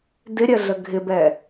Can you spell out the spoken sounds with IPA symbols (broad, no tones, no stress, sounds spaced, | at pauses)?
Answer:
d ɪ ɾʲ ɜ ɮ ə ɡʱ ɪ b ɛ